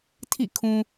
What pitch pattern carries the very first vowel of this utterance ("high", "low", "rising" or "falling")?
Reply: falling